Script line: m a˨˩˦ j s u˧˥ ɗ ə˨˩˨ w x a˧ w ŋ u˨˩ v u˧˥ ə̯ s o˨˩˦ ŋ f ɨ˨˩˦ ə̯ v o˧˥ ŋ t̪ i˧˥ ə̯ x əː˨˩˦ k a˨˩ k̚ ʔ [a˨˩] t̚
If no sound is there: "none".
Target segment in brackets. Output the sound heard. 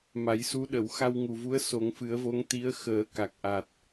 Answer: a˨˩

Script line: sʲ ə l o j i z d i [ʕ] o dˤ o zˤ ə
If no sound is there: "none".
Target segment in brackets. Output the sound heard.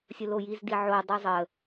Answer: ʕ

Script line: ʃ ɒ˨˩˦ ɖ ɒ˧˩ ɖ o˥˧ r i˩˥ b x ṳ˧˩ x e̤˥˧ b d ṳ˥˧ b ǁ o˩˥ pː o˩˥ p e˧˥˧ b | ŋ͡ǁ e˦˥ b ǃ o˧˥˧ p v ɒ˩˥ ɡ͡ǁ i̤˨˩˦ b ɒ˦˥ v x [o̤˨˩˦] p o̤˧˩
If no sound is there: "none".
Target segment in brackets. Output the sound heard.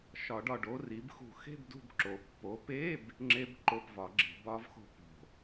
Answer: o̤˥˧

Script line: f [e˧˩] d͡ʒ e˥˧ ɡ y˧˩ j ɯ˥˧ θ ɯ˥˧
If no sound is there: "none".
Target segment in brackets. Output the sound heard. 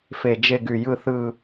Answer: e˧˩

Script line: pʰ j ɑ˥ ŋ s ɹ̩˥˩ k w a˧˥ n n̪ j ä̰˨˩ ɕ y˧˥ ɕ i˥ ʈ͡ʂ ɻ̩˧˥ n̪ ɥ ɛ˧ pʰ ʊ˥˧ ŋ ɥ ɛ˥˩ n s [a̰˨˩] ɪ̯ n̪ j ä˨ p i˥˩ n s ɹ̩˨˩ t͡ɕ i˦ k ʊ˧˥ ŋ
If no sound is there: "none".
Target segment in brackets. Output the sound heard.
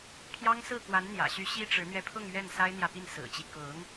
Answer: a˥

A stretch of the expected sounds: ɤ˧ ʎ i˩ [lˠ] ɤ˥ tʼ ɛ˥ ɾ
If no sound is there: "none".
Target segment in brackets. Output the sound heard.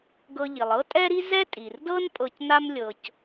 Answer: lˠ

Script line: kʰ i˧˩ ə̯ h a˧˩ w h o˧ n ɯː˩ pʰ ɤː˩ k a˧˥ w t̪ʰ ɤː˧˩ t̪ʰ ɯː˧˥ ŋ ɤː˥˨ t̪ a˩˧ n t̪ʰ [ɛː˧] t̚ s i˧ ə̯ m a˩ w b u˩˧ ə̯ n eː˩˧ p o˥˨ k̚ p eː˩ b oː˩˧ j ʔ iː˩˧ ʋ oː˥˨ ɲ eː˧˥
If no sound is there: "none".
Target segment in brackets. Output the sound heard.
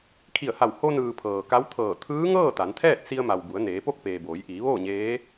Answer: ɛː˥˨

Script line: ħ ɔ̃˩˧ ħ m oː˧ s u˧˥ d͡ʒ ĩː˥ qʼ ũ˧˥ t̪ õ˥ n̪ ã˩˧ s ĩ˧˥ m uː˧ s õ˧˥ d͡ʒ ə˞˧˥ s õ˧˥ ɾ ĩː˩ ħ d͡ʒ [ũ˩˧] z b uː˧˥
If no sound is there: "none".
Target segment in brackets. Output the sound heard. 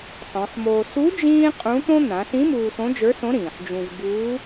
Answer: ũ˧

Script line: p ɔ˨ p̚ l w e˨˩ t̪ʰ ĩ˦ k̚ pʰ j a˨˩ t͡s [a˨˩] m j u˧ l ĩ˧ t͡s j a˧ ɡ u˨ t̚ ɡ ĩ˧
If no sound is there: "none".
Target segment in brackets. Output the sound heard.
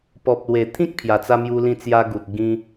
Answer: a˧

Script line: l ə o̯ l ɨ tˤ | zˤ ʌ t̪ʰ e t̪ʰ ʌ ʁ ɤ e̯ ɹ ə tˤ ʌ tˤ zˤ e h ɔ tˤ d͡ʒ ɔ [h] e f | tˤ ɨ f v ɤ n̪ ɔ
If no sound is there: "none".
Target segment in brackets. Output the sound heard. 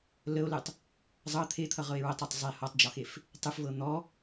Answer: x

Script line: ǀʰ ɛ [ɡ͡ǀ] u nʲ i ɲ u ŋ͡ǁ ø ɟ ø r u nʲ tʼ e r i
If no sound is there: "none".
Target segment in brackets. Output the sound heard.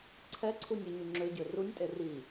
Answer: ǀʰ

